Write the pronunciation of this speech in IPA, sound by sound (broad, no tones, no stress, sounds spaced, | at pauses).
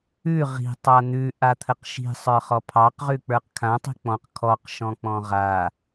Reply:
ʉ ʁ i̤ tˤ a n̪ ʉ ʔ a t̪ʰ ə q ʃ i̤ sˤ ə˞ χ ɔ pʰ ɑ q ʁ ʉ k͡p ə˞ q kʰ ã tˤ i̤ k͡p ɔ̃ q kʰ ɔ q ʃ ɔ̃ k͡p ɔ̃ ʁ a